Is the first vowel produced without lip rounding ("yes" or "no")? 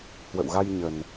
yes